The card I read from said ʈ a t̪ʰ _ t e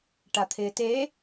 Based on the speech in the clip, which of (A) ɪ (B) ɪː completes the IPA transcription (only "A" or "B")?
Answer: B